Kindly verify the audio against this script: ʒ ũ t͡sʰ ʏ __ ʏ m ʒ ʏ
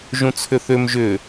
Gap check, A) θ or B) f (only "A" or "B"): A